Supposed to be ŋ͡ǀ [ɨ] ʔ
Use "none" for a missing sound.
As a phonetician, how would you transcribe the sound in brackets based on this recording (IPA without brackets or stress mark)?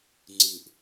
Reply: ɨ